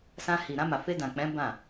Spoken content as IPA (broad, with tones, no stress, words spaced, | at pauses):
sã˧hi˨ɾã˧ma˨ fe˧dã˨k͡pɛ̃˨˦ bã˦˨